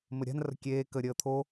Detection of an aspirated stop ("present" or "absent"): present